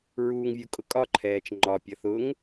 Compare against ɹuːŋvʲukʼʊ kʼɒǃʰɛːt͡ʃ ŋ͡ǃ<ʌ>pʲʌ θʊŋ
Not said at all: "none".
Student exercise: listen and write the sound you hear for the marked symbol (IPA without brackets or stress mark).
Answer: ɒ